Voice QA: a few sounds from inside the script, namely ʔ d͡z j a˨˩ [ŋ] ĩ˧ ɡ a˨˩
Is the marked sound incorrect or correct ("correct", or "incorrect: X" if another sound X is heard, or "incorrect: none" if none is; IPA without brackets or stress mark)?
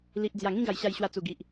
correct